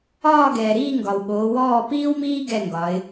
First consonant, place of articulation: velar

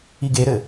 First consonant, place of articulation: velar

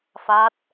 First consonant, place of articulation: labial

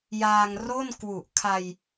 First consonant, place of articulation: palatal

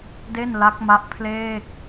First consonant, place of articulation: alveolar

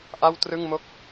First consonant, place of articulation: glottal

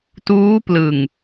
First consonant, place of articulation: alveolar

